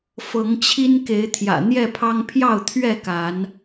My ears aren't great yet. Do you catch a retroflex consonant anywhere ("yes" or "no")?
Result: no